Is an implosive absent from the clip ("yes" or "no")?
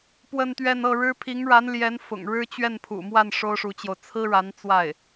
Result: yes